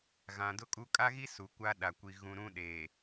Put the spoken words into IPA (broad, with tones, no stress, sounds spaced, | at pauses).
ɣ ã˨ d ʊ˦ kʼ u˦ kʼ a˦ ɣ i˦ s u˨ kʷ a˦ ɗ a˨ kʷ i˨ ɣ ũ˨ ɾ ũ˦ ɗ eː˨